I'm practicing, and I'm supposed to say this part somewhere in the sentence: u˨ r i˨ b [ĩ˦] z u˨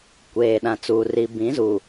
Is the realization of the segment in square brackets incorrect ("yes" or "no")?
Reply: yes